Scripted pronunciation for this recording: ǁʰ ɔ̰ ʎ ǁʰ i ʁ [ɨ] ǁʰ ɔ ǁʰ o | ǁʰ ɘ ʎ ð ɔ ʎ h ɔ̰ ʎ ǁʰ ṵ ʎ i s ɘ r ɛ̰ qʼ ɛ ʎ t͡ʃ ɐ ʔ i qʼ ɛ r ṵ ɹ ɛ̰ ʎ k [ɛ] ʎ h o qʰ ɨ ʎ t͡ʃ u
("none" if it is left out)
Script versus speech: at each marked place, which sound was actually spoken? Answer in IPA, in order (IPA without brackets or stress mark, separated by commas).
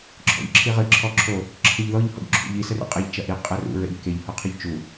ɨ, e